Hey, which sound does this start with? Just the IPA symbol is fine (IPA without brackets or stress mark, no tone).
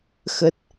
x